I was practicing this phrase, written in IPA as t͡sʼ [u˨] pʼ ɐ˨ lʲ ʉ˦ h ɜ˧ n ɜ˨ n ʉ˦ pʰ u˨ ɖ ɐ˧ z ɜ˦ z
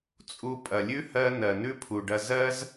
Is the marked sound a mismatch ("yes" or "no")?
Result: yes